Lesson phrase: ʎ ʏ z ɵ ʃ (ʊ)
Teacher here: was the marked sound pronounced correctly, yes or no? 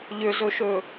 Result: no